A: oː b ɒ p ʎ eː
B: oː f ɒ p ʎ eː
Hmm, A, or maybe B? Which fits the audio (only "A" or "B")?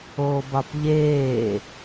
A